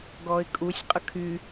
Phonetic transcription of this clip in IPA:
ɡ ɔ ɪ̯ kʼ u sʲ qʼ ə kʰ y

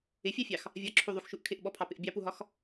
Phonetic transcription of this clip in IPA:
ɪ fʲ ɑ fʲ ɑ x | vʲ ɒ ǁʰ u ðˤ u x ʃ u ʔ kʰ ɪ ʔ ɓ ɔ pʰ ɑ p ɪ ʔ bʲ ɑ p u ɦ ɒ x

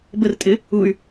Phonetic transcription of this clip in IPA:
b ə r tʼ ɪ | u y̯

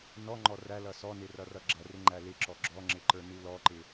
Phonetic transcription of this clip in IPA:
n ɔ ŋ͡ǃ ɔ r æ l ʌ s ɔ n ɪ r ʌ r ʌ ɡ͡ǁ ʌ r ɪ ŋ͡ǃ æ l ɪ ǁ ɔ ɡ͡ǁ ɔ ŋ͡ǁ ɪ ǃ ə˞ n u l ɔ ǃ ɪ

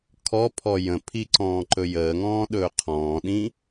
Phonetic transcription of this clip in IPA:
kʰ ɔ pʰ ɔ j ə̃ pʰ i ǀ ɔ̃ː ǃ ɵ j əː ŋ ɔ̃ː ɗ ɵː qʰ ɔ̃ː ɗ ĩ

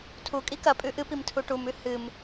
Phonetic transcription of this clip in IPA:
tʰ u kʼ i k ɐ pʼ ʉ ʔ ɨ p i m tʰ u ʈ u m ʉ h ɨ m

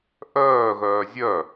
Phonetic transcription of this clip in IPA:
ʔ œː ɣ œː zʲ œ

